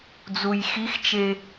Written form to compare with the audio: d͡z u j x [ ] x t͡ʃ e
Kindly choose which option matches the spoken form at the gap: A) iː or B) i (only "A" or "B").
B